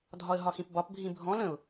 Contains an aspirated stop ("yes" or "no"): no